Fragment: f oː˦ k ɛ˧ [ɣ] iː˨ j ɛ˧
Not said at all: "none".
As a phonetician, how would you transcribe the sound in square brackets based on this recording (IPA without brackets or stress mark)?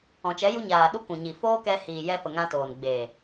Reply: h